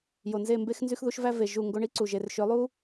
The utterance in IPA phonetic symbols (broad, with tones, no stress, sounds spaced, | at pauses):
j o˨ n z e˦˨ m b e˦ x n z y˦ x ð u˦ ʃ v æ˦ v e˨ ʒ u˦˨ ŋ ɡ o˧ ɳ i˦ ǀ u˨ ʒ e˨ r ʃ ø˨˦ lˠ u˦